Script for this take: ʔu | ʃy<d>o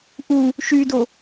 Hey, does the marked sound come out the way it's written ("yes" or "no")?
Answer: yes